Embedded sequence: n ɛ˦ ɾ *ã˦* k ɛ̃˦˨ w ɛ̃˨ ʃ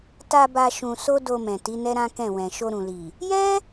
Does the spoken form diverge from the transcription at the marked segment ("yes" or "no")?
no